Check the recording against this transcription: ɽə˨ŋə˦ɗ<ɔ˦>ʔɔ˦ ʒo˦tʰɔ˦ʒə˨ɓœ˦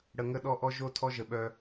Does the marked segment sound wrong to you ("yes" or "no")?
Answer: no